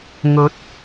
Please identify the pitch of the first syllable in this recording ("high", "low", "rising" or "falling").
rising